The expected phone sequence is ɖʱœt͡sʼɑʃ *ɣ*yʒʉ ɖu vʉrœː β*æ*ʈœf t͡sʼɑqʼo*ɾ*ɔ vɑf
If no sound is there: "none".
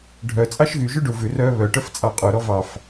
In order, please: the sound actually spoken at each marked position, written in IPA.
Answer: ɣ, œ, ɾ

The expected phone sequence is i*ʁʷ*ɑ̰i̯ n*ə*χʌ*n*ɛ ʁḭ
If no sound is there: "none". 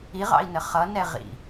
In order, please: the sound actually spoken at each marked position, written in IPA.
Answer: ʁ, ə, n

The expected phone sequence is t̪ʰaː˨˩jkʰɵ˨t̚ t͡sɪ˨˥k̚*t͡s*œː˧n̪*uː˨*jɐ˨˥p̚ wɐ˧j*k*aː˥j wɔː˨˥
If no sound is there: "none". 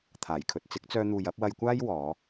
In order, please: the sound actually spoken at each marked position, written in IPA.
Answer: t͡s, uː˨, kʷ

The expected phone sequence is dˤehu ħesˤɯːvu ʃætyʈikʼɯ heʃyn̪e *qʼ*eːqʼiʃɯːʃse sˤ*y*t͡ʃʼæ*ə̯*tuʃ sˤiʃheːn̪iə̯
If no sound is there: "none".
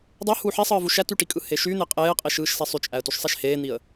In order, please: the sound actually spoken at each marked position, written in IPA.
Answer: qʼ, y, ə̯

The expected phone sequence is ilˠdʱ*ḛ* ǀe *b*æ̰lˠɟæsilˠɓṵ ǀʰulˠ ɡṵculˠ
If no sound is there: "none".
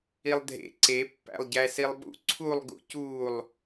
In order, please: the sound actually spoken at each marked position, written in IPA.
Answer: ḛ, pː

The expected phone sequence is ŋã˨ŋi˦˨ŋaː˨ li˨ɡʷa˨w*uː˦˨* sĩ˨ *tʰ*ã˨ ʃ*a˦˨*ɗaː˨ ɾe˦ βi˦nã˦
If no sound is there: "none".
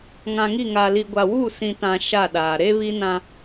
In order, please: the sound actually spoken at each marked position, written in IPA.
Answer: uː˦˨, t, a˦˨

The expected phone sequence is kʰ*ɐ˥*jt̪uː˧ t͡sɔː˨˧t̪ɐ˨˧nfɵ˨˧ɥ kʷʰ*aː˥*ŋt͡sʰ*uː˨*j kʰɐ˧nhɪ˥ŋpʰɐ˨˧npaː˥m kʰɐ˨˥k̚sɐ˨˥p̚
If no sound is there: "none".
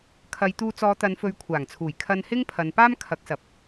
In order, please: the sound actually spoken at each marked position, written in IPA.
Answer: ɐ˨˧, aː˨˩, uː˨˩

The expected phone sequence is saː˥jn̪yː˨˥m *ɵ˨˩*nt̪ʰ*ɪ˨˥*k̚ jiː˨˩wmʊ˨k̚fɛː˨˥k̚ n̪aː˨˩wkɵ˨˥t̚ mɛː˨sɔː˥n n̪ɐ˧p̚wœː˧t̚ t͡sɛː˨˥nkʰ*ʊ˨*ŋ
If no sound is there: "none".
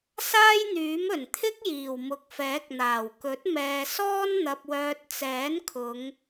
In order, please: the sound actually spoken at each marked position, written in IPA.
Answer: ɵ˨˩, ɪ˥, ʊ˨˧

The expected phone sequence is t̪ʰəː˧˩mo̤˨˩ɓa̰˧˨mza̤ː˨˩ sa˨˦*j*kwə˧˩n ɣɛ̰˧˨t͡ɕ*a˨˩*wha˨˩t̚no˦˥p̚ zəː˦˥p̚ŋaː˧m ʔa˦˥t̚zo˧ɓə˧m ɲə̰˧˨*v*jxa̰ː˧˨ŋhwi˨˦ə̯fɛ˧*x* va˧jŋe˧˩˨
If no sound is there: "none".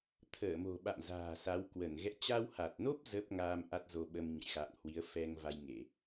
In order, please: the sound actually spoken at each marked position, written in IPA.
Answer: w, a˧, none, ŋ

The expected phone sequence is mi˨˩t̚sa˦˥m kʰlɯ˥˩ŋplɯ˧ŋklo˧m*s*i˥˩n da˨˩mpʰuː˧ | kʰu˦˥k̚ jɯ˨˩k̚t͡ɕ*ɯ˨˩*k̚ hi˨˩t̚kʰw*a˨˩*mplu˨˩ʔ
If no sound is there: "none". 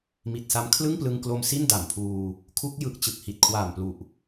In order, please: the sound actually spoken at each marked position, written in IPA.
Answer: s, ɯ˨˩, aː˨˩

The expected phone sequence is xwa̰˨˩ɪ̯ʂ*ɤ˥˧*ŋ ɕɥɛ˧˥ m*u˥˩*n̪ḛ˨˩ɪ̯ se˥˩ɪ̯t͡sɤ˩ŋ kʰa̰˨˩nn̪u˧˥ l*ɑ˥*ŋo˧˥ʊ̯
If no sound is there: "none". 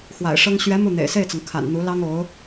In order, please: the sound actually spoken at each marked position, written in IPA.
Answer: ɤ˥, u˥˩, ɑ˥

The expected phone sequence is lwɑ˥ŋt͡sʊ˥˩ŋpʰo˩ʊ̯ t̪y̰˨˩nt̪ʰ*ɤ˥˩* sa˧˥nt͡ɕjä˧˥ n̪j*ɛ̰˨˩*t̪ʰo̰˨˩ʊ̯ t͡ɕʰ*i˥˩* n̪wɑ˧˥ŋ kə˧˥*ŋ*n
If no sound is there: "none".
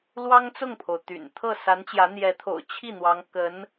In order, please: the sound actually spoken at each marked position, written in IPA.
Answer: ɤ˥˩, ɛ˧˥, i˥˩, none

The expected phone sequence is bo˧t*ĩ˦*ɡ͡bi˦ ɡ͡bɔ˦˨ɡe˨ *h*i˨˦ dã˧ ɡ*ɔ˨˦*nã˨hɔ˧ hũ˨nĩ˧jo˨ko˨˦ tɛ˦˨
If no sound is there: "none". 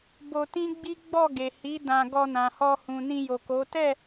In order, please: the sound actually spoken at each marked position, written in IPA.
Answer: ĩ˦, h, ɔ˧

